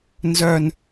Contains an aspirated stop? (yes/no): no